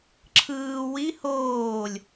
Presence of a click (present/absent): present